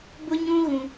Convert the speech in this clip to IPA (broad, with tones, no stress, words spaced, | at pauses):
bʊ˦ɲũ˦ ɣũ˦